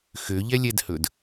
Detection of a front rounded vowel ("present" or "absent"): present